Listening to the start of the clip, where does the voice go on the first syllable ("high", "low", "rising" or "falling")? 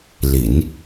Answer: low